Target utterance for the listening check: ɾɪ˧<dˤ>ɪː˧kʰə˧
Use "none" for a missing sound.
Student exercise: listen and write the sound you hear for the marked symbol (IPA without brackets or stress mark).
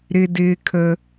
d